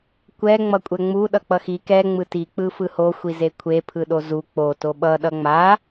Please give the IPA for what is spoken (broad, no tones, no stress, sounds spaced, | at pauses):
kʷ ɛ ŋ͡m ʌ kʷʼ ɛ ŋ͡m u ɗ ʌ k͡p ʌ x i k ɛ ŋ͡m ɯ t i k͡p ɯ f ɯ h o xʷ i z e kʷʰ e pʰ ɯ ɗ o z u k͡p o t o ɓ ʌ ɗ ʌ ŋ͡m a